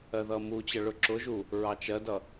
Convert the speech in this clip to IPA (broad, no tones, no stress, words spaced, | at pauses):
ɜðʌmut͡ɕʌ ɭʊǁʊʒu | ɹɑt͡ʃɜdʌ